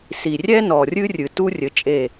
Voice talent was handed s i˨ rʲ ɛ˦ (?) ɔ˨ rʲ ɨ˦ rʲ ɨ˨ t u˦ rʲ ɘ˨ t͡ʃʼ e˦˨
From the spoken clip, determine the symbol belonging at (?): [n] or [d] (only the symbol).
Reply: n